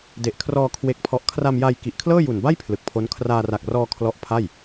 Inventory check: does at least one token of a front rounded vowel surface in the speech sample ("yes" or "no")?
no